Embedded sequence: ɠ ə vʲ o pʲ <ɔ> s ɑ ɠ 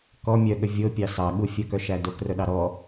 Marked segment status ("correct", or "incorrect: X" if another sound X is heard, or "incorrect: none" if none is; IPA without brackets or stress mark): incorrect: ɑ